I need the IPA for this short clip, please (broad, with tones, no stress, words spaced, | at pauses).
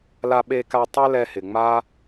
la˧ɓe˧ka˧ tˤɛ˦lɛ˧hɪ˨ ŋ͡ma˦